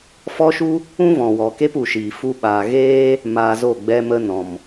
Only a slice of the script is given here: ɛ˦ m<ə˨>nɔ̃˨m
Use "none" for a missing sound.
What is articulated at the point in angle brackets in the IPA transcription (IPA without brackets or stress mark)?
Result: ə˧